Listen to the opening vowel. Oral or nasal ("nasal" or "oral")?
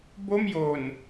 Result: oral